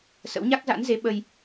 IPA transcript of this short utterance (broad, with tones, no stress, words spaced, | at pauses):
sə̰˧˥wɲa˦˥k̚za̰˧˥nze˨˦ ɓə˧j